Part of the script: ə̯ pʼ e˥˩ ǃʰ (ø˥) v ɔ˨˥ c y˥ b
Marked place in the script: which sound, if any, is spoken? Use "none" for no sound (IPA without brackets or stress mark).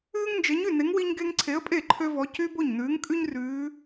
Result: ø˥